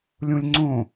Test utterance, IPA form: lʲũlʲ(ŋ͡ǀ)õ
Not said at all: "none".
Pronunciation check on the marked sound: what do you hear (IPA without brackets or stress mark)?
ŋ͡ǀ